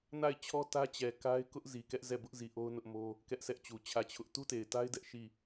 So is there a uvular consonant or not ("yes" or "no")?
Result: no